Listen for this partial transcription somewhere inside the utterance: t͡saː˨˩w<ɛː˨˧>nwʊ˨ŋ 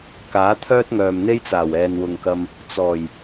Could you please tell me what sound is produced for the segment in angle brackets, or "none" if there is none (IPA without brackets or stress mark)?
ɛː˨